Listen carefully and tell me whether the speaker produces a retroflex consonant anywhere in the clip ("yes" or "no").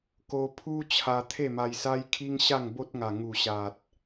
no